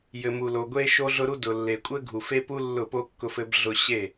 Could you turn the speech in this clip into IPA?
jɘ˨mu˨lo˨ ɡʷe˦ʃo˦ɮʊ˦ɾu˦ dʊ˨lːe˨ kʷʼɘ˦ɡʱu˨fe˦pu˦ lːʊ˦˨po˦ kːʊ˦fɘ˦bɮʊ˦ ɕe˦˨

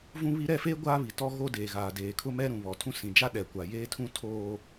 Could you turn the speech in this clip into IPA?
vũ˦βi˦ ɾɛ˦˨feː˦ ɡʷaː˦βi˨tɔ˦ ɣo˦deː˨ɣaː˨ deː˨kʰʊ˦mɛ˦ ɾũ˨βɔ˨tʰũ˦ sĩ˨d͡ʒa˦ ɗɛ˨kʷa˨ jeː˦tʰũ˦ tʰoː˦

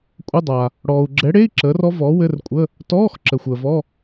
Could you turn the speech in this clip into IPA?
kʷʼə˧˥˧dˤa˨ | ɽɔː˨u̯ ɡ͡ǁɛ˨˥ɽe˧˥˧i̯ ǁəː˨˥rɔ˦˥vɔː˨˥ wɘ˧˥˧rkʷʼə˧˥˧ | tɔː˧˥˧x ǁə˨xʷəː˨vɔ˧˥˧

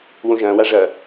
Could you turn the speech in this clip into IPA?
wõʒɐ̃ːwa ʐɐ

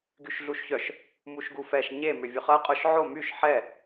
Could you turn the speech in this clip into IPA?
ɡyʃɮuʃçœʃ | muʃɡufɛʃ ɲe mʏvʲʊχɐ qʼʊʃ ʕo myʃ ħɛ

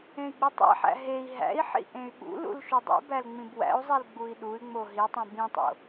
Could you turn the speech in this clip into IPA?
ẽi̯ɡ͡bitˤæ̰ħæ̰ ɦei̯ ɦæ̰i̯ħḭ ʔẽy̯ɓṵlṵl ʃudˤḭbæl ŋ͡mĩbwæ̰u̯zˤil ɡ͡bui̯ɗuy̯ŋ͡mo ɦitˤĩ bĩtˤo̰

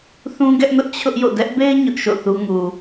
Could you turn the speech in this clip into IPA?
θũ˦ɡɛ˦ʔnʊ˦ʔ t͡ɕʰʊ˦ʔ jo̰˦˨ dɛ˦ʔbe˦ɪ̯ ɲʊ˦ʔ ʃo̰˦˨θu˦ ŋu˨

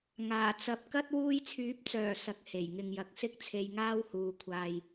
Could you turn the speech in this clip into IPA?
ŋaː˨˩t͡sɐ˨˥p̚ kɐ˥t̚ wuː˧jt͡sʰyː˨˥p̚t͡sœː˨˩ sɐ˨k̚he˨˩j ŋɪ˨ŋjɐ˨˥k̚sɪ˥k̚t͡sʰe˧j ŋaː˥whuː˨ kʷʰaː˨j

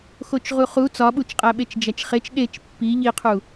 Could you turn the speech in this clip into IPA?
xot͡ʃʁuχu t͡sɒɓut͡ʃqʼæ ɓet͡ʃd͡ʒæt͡ʃχet͡ʃ ɗet͡ʃ pːi ʎiqʰu

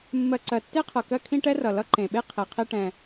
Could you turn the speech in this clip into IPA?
mːɜ˨ǀɜ˩tːe˥qʰɤ˩ kɜ˦kʰĩ˦ ʈɛ˥rʌ˩ lʌ˦ǃẽ˩ɓe˥ qʰe˩qʰe˦ ʈɛ̃˨

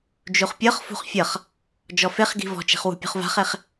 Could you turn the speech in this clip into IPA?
d͡ʒuχpʲɤχfṳχ fʲʌχ | d͡ʒɔfeχɡi̤ vɔ̤t͡ʃi̤χ wṳpʲṳχva̤χeχ

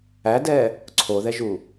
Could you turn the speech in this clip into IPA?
ædɛ | ǀʰoðɛʒu

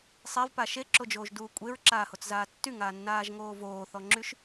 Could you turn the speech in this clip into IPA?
sˤevpa ʃeǁod͡ʒoːʒduː kʷʼeɹǁaːhot͡szaː tːyŋaːnːaːʒŋoː voːθɔŋ͡ǁyʃ

